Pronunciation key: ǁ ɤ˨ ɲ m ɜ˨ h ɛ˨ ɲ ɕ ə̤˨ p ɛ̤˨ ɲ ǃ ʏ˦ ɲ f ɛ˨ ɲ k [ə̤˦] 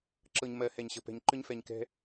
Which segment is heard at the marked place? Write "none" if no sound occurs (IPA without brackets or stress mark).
ɛ̤˦